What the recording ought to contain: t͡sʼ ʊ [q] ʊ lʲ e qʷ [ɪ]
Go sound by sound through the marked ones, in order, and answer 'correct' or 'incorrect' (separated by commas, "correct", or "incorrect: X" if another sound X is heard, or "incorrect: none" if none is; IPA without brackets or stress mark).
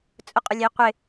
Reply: incorrect: qʼ, correct